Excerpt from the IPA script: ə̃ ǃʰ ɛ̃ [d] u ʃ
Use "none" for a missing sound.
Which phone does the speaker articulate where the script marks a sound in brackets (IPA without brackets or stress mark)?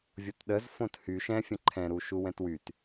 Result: ɾ